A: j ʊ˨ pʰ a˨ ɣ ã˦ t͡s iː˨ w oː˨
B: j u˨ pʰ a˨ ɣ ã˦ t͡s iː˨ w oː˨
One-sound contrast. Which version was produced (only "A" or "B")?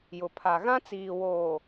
A